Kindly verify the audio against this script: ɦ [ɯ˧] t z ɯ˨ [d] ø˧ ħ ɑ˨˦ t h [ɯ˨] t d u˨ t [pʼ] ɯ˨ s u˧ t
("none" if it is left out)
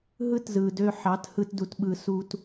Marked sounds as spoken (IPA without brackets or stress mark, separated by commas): ɯ˦, d, ɯ˧, ɓ